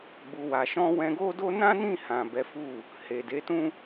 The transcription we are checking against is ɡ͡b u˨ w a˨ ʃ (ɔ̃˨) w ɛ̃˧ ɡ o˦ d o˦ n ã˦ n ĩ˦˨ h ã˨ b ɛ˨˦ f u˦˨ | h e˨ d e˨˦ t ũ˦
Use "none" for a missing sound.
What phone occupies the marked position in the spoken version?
ɔ̃˧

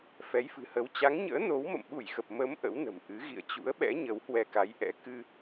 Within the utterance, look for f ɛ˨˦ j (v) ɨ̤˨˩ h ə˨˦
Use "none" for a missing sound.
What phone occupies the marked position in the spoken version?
f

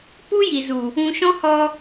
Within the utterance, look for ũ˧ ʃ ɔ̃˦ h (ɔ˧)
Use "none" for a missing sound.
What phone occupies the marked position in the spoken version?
ɔ˧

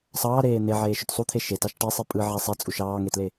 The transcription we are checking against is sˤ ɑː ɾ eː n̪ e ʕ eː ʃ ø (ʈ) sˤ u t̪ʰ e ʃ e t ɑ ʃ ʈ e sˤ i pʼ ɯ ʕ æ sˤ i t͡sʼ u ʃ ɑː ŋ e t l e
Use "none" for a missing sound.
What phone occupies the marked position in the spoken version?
t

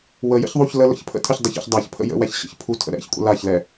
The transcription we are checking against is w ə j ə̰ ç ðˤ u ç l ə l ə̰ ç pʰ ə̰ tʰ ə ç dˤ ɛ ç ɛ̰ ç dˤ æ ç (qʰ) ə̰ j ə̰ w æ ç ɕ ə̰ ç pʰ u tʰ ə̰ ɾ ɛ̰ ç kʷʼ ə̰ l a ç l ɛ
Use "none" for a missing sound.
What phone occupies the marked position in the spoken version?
pʰ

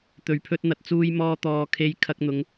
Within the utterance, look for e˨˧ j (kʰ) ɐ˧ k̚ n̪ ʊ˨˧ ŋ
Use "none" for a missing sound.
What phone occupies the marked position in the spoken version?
kʰ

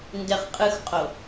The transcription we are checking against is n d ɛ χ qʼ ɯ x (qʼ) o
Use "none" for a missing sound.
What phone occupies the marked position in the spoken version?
qʼ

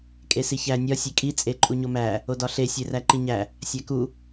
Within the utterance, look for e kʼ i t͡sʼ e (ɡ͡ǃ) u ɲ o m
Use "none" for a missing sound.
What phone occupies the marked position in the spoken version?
ǃʼ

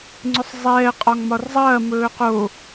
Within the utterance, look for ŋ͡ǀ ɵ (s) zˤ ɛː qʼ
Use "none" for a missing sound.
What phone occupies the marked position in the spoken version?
sˤ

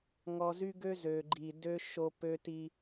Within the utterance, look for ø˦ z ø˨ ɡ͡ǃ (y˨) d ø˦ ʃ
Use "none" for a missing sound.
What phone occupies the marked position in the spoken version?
i˨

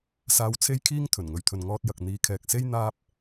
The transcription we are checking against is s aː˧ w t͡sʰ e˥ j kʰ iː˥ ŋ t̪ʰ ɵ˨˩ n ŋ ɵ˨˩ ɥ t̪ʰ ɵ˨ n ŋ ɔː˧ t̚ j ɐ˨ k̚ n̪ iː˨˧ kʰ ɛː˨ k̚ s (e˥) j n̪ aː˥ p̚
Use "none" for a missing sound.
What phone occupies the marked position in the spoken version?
e˥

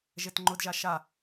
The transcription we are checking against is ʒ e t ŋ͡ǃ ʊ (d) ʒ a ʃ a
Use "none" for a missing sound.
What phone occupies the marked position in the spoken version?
d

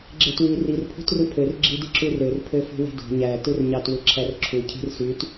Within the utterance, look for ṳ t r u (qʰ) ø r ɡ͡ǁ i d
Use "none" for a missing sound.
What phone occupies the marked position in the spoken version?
pʰ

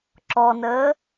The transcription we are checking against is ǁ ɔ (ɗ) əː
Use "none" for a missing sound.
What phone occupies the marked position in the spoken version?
n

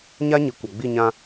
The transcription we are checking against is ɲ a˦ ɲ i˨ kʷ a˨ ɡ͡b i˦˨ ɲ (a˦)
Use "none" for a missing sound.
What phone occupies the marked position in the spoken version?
ã˦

